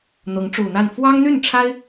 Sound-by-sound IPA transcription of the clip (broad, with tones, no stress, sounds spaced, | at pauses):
n̪ ʊ˧˥ ŋ ʈ͡ʂ u˨˩ n̪ a˥˩ n f w ɑ˥ ŋ n̪ y˥˩ n ʈ͡ʂʰ a˥ ɪ̯